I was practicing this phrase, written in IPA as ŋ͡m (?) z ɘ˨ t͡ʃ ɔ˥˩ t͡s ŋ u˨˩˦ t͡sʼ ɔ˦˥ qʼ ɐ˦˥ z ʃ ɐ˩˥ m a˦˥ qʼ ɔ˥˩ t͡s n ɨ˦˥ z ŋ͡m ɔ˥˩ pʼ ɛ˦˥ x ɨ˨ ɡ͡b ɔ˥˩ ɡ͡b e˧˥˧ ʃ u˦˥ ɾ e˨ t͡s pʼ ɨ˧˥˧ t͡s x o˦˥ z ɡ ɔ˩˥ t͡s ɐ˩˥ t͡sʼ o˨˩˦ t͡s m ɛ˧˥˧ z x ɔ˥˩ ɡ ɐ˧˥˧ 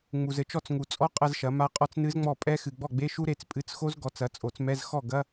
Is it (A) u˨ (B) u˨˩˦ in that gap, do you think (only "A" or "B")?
A